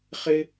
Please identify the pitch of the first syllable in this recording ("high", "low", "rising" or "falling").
high